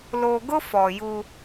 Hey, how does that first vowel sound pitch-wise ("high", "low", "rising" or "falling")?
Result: low